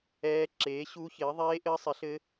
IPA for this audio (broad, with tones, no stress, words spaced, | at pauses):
ɛː˦˥ ǁeː˨˥ɕu˦˥çɪː˨˥ ðˤeː˦˥ʔɘː˦˥sˤɪ˨˥ɬɘ˦˥